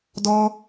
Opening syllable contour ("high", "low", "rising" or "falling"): high